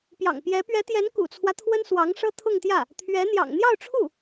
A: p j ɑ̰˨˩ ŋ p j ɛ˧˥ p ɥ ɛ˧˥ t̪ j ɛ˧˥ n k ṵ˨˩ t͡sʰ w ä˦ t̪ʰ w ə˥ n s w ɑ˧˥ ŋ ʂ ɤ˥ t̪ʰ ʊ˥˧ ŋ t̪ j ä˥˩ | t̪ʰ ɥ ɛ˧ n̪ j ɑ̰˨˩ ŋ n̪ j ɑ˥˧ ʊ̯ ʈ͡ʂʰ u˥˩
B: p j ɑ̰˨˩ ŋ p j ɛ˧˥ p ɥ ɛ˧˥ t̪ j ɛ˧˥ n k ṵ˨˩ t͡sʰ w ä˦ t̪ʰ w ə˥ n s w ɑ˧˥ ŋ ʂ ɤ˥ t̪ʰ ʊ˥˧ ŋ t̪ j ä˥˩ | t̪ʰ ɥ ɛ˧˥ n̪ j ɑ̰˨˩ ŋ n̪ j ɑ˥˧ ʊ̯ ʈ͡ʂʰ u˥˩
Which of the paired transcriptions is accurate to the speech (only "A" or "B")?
B